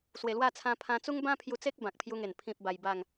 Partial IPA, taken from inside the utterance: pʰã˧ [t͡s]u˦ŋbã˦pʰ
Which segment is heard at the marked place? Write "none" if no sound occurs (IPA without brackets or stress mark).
t͡s